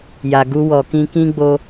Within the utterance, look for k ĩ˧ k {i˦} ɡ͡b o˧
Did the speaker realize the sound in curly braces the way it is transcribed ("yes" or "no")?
no